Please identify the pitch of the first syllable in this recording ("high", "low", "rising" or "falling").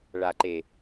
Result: low